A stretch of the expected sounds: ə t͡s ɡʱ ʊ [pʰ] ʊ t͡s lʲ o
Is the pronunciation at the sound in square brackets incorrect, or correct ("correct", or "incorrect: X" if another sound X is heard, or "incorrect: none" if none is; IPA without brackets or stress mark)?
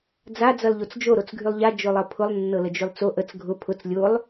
correct